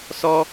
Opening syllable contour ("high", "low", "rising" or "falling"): high